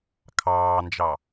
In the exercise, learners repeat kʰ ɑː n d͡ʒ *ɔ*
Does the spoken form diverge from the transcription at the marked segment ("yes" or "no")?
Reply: yes